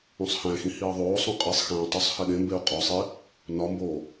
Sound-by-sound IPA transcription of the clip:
ũ sˤ h æ̃ x ĩ h iː ðˤ oː sˤ ũ qʼ e sˤ x æ̃ː tˤ o sˤ h e ɗ ẽ m b e u̯ qʼ ɒ sˤ i | n ɒ m b oː

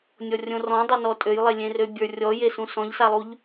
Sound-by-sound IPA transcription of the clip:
nʲ ɔ rʲ õ r ɔ̃ dˤ ø n ɔ tʼ ø j lˠ e lʲ ẽ r ø bʲ ə˞ rʲ ɔ j e s ũ s ɔ̃ ʎ s a lˠ u ʎ

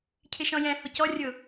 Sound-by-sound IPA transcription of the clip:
cʰ ɪ ʃ ɔ̃ j ɛ̃ h ʊ c ɔ rʲ ʊ

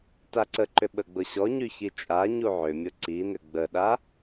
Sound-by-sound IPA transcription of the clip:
t a ǀ ə ǃ ʏ ɓ ə ɡ͡b ʊ ɕ ɔ ɲ y ç i t͡ʃʼ a ɲ u ʕ ʏ mʲ ʊ ǀ i n ʏ ɡ͡b ə ɗ a

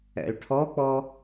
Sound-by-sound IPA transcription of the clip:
ɛ̰ y̯ ʈʰ ɔ k͡p ɔ

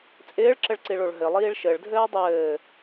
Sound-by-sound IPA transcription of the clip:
t͡sʼ ɪː ɭ ǁ ɘ ɭ ǀ i ɭ o ɭ ɦ ɘ lˠ iː ɭ ʃ ɘ ɭ dʱ ɘː dˤ ɘː

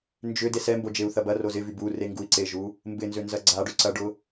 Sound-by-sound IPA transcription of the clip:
n d͡ʒ ʏ d e s ɛ m b o d͡ʒ e u̯ θ ɐ b ɐ r o z ɪ v y b u r e ŋ ɡ u i̯ ǀ e ʒ u | m b ɪ n z ʏ n z ɐ ɡ͡ǀ a ɖ ʏ ǀ ɐ ɖ ʊ

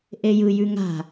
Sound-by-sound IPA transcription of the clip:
ʔ e j ɯ j ʉ ŋ a̤

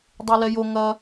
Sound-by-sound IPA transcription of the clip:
dˤ i l ɛ j o ŋ ɐ

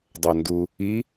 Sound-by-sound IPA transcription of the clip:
dˤ o n d u | i

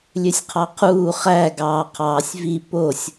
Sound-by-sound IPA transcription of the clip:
lʲ ø sʲ qʰ ɑ qʰ uː χ æ ɡ ɑː qʰ ɑː sʲ v i p o sʲ

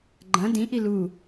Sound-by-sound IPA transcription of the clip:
ɡ͡ǃ ɐ̃ d ĩ ʔ i l u

